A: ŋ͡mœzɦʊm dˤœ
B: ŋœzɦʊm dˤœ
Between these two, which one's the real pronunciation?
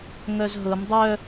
B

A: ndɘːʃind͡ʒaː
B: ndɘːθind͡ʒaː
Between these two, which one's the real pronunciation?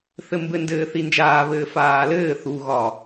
B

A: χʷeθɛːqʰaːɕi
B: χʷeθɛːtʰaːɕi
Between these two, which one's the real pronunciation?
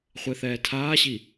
B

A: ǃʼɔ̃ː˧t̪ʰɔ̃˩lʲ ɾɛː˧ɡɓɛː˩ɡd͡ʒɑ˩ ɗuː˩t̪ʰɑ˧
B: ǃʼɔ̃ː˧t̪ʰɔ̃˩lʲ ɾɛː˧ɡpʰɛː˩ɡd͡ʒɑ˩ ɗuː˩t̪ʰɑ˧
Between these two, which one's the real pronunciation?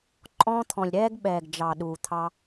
A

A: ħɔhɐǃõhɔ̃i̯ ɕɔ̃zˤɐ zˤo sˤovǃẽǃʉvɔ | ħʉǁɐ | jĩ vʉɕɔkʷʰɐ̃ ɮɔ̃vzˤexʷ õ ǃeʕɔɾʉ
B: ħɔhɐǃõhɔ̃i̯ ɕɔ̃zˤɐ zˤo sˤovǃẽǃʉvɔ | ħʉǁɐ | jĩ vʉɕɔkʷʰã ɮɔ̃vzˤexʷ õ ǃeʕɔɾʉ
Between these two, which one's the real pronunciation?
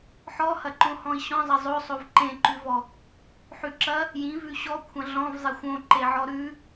A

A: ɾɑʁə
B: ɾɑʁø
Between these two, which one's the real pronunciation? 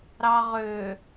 B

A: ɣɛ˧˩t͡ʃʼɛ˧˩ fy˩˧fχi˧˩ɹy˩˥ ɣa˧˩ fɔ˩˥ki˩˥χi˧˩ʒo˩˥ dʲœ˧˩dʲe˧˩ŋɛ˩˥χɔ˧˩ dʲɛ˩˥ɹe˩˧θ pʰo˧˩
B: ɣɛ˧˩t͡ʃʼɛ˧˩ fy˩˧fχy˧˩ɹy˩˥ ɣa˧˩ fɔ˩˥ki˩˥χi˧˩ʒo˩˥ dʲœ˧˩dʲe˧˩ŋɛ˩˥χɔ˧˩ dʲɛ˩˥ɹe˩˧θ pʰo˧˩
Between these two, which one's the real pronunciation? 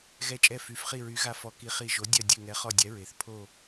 A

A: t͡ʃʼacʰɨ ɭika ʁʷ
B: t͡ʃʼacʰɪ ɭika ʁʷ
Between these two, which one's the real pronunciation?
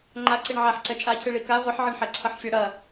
A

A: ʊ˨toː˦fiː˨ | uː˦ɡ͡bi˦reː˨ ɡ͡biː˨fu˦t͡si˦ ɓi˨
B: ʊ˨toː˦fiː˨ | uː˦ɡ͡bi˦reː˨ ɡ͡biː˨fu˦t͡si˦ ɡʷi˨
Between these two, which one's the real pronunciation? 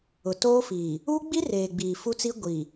B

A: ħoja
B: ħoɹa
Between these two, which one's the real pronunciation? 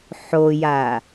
A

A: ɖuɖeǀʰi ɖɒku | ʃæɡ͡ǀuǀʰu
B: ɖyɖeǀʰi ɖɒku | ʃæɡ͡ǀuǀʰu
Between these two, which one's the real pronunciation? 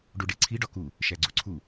A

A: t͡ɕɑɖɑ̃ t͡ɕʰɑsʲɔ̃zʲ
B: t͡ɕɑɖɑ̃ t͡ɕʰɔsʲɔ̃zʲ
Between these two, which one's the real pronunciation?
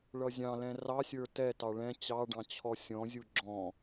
B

